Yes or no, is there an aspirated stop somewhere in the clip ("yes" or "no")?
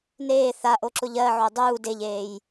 no